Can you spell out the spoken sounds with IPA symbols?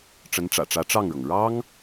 ʈ͡ʂ ə˧˥ n ʈ͡ʂ ä̰˨˩ ʈ͡ʂ ä˧˥ ʈ͡ʂ ɑ˥˩ ŋ ɻ ɤ˩ ŋ ɻ ɑ˥ ŋ

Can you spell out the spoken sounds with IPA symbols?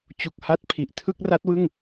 t͡ɕ u˨˩ k̚ h a˦˥ t̚ pʰ i˨˩ ʔ tʰ ɯ˥˩ k̚ r a˦˥ t̚ w ɯ˥˩ ŋ

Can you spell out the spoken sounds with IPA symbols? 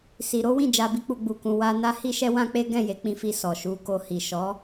s i˧ ɾ o˦ w ĩ˦˨ d͡ʒ a˧ b i˦ k͡p u˧ ɡ͡b u˧ k ũ˧ w a˧ n a˦ h i˦ ʃ ɛ˦ w ã˦ k͡p e˦ ɡ ɛ̃˦˨ j e˨˦ k͡p ĩ˧ f i˧ s ɔ˨ ʃ u˧ k o˧ h i˨ ʃ ɔ˨˦

